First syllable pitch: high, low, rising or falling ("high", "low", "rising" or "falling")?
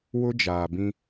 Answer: high